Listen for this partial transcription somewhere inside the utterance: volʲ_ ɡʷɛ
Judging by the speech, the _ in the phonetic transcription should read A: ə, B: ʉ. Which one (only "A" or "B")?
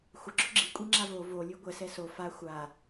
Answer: B